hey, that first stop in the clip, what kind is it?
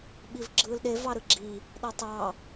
implosive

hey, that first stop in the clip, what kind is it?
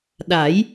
implosive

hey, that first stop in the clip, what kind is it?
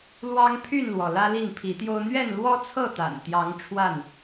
aspirated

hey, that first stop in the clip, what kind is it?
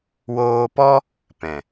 plain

